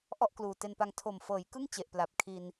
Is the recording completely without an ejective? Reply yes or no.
yes